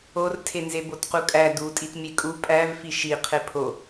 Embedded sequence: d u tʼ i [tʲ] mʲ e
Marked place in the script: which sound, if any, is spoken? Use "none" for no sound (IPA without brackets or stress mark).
t